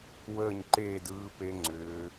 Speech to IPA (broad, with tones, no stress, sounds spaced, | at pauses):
w əː˥˧ ɲ ǃ eː˥˧ d ɯː˦˥ p e˦˥ ŋ͡ǀ ʏː˦˥